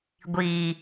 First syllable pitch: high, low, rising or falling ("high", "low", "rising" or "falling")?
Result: low